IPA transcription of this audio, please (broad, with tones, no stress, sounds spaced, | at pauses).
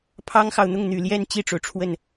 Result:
pʰ ɑ˥ ŋ x ɑ˨ ʊ̯ n̪ ʊ˥˩ ŋ n̪ y˨˩ l j ɛ˥˧ n t͡ɕ i˥˩ ʈ͡ʂ o˩ ʊ̯ ʈ͡ʂʰ w ə˥˩ n